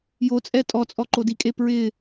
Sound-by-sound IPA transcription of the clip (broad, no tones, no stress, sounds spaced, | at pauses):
j o t͡sʼ ɛ tʼ ɔ t͡sʼ ɔ ǃ o d i kʼ e p ɹ ɪ